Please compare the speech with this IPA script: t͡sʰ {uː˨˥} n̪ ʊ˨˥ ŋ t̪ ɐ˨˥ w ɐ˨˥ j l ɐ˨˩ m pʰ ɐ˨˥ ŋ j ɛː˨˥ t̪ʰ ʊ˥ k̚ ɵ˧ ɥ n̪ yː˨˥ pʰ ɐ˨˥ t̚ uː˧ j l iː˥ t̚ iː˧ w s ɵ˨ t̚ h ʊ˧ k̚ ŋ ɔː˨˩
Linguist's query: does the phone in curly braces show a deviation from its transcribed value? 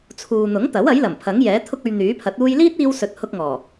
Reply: yes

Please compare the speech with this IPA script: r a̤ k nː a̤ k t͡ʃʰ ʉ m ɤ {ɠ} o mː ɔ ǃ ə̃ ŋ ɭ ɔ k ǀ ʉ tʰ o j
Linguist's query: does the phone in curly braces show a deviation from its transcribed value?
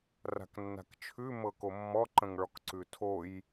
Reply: yes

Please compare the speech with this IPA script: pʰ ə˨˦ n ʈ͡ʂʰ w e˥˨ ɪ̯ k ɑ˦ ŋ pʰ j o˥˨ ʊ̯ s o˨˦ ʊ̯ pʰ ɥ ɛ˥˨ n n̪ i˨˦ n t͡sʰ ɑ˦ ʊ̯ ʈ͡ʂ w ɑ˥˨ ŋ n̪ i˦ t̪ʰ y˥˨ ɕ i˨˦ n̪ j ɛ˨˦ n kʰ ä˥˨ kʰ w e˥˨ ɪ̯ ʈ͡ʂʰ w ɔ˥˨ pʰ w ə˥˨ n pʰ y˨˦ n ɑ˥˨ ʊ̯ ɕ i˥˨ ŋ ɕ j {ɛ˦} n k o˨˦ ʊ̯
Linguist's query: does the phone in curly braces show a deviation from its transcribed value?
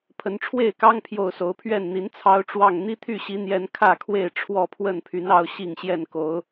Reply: yes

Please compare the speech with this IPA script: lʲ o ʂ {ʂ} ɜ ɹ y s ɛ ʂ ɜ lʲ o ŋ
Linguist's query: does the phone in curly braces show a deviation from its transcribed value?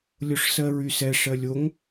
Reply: yes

